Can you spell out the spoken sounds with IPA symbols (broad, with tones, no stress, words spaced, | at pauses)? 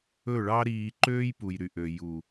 ɵ˦˨ɭɑ˦ɾiː˧ ǃøː˦jpu˨jɾy˨ʔø˨ ju˨